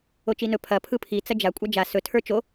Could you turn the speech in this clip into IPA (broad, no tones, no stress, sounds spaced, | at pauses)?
o t͡ʃ i n ɵ pʰ ɐ pʰ ɯ pʰ i t͡s ɐ d͡ʒ a kʷʼ a d͡ʒ a s ɵ tʰ ə˞ t͡ʃ o